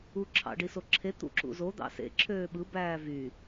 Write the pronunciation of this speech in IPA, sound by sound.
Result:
u ǁʰ ɑ̰ ɖ i s o ǁʰ e t̪ ṵ ǁ ṵ z o d̪ ɑ̰ s ḛ ǁʰ øː ɓ ɯ b æː v y

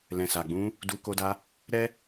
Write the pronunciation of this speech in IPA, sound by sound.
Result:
l ɛ̃˨ s a˨ ɡ͡b ũ˧ | d u˧ k o˧ d a˧ | ɾ ɛ˦

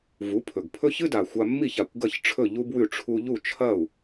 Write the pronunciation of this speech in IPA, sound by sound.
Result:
v u˩˥ pʰ ɵ˩ ɡ pʰ ɵ˥ ç ɨ˥ d a˩ xʷ a˧ mː i˥˩ ç a˩ kʷ ɡ ɐ˥˩ ç ʈ͡ʂʰ ɵ˥˩ ʎ u˥ b w ʉ˥˩ ʈ͡ʂʰ u˧ ʎ u˥˩ t͡ʃʰ ɐ˥˩ u̯

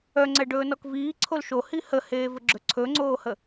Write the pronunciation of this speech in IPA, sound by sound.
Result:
œ ŋ͡ǀ ɛ ɖ ɵː n ɔ k v iː ǀʰ o l ʃ o h i h ə h eː v ə ɡ͡ǁ ɵ ǀʰ ɵ ŋ͡ǀ oː h ə

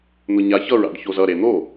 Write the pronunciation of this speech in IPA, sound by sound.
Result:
n̪ ʊ ɲ a ç ʌ ɹ a̰ ɖ ç o z ʌ ɾ e n̪ o

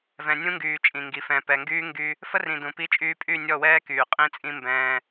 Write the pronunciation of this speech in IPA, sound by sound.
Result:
v ɛ̃˨ nʲ ũ˦ ŋ ɡ yː˨ t͡ʃʼ ĩ˨ ŋ ɡ i˨ f ɛ̃˨ p ɛ˨ ŋ ɡ yː˦ ŋ ɡ y˦ | f ə˦ r ĩ˨ d ũ˨ p i˦ t͡ʃʼ yː˦ pʼ y˦˨ nʲ ɔ˦˨ w ɛː˦ k yː˨ qʼ ĩ˦ t͡sʼ ĩ˦ m b ɛ̃ː˦

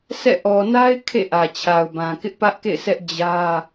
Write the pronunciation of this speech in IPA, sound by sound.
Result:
sʰ ɛ̰˦˨ ʔ ɔ˨ n a˦ ɪ̯ kʰ ḛ˦˨ ʔ ä˨ t͡ɕʰ a˨ ʊ̯ b ã˨ k ɪ˦ ʔ p ä˦ ʔ k ḛ˦˨ ɪ̯ s ɛ˦ ʔ d͡ʑ ä˦

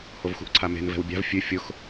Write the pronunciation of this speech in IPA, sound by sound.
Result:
h o v x ṳ ʔ ǀʰ a m e̤ n v ɛ̤ w bʲ a̤ v fʲ ʉ fʲ ʊ x

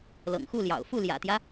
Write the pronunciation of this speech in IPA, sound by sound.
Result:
l ɤ̰˨˩ ŋ x u˥˩ l j ɑ̰˨˩ ʊ̯ f u˥˩ l j ä̰˨˩ t̪ j ä˦

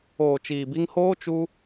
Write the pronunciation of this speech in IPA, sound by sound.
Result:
oː˨ t͡ʃ iː˨ b i˧ ŋ h oː˦ t͡ʃ u˦

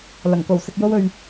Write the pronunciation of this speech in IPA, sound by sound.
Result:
l ɐ˨˩ ŋ k o˨˩ w s ɪ˧ k̚ j o˥ w ɵ˧ ɥ

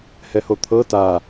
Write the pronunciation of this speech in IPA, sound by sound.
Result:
h ɛ h o t̪ʰ ɤ t a

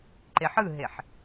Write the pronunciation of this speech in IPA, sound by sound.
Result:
ǃ e ħ ɯ ɦ e ħ

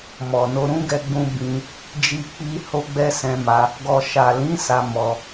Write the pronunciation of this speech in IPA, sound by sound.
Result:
m ɔ˨ n o˧ ɾ ũ˦ ɡ ɛ˧ ɡ͡b ũ˧ b ĩ˧ | d͡ʒ i˧ k͡p i˧ h o˦ ɡ͡b ɛ˦ s ɛ̃˧ m a˧ | ɡ ɔ˨ ʃ a˨ l ĩ˨˦ s a˧ m ɔ˧

